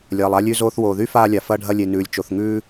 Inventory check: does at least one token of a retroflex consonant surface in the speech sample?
yes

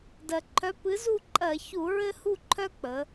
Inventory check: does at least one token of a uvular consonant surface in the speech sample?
no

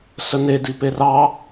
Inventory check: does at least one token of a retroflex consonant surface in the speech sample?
no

